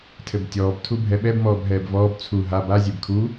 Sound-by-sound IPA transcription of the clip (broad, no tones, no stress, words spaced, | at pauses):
tʰɘbtʲɔːb tʰubʱɛɓɛb mɔːbɦɛːbvɔːb t͡sʰu ɦab a zʲebkʰu